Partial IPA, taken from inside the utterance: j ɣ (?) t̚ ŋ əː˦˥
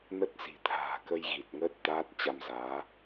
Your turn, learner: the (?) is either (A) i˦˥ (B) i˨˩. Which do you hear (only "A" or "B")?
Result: B